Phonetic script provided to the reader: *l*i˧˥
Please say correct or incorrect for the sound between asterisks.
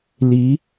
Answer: correct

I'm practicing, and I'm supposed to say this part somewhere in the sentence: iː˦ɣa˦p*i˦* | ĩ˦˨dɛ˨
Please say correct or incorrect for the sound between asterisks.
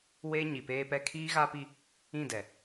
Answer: correct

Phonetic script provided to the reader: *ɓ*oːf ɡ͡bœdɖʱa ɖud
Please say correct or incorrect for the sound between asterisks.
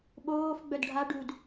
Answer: correct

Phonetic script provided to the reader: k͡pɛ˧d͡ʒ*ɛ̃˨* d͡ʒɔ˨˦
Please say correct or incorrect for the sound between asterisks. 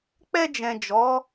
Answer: correct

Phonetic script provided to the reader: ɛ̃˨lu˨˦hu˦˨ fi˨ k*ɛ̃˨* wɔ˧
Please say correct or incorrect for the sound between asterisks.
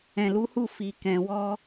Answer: correct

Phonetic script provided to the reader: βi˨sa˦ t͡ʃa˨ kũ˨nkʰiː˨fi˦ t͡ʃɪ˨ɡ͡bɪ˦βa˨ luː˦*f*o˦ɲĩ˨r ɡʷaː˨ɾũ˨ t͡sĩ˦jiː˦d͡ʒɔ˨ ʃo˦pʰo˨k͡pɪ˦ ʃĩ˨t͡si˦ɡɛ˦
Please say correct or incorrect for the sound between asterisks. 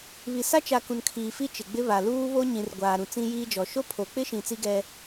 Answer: incorrect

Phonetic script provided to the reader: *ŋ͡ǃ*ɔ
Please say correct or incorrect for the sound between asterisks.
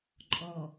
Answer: incorrect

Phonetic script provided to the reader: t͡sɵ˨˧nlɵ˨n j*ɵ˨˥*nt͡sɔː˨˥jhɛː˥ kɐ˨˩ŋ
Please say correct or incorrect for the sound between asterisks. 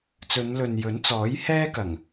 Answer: correct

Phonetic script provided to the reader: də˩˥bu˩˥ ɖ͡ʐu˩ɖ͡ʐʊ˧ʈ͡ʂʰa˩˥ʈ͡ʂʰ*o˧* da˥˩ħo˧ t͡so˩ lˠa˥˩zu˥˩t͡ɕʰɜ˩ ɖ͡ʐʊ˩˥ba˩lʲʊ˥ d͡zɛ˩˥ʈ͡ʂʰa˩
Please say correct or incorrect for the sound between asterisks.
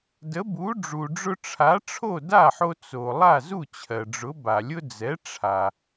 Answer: incorrect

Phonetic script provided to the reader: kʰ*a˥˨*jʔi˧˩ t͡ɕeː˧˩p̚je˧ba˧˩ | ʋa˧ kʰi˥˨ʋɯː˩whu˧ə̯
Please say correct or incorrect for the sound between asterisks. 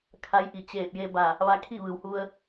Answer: incorrect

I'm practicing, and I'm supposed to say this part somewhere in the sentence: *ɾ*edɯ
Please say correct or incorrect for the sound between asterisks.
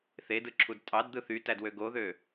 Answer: incorrect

